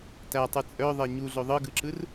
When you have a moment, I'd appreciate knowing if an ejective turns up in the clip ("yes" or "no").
yes